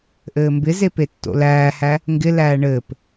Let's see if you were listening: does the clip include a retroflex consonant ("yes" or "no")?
yes